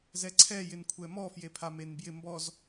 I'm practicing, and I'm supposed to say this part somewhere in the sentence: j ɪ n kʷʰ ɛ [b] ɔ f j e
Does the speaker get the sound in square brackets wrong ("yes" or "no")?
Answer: yes